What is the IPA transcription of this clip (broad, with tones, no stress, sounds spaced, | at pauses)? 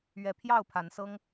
ɥ ɛ˨˦ pʰ j ɑ˥˨ ʊ̯ pʰ a˨˦ n s ɤ˦ ŋ